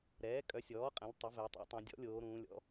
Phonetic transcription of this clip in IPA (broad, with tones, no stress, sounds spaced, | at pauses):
ɾ ɛː˩˥ kʼ œ˩˥ sʲ ɔː˩˥ qʼ ɛ̃˩˥ ʎ tˤ ə˩˥ v ɛ˩˧ tˤ ɛ̰˩˥ tˤ ũ˩˧ dʲ ɔ̰˩˥ lʲ oː˩˧ ɾ ũː˩˧ lʲ ɔ̰˩˥